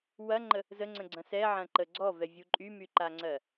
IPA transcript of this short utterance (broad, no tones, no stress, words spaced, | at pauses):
wɐŋ͡ǃə | zəŋ͡ǀə̃ɡ͡ǀɐ̃ sɛʕɐ̃ǃə ɡ͡ǀɔvɛvʲu ǃʼymyǃaŋ͡ǀɜ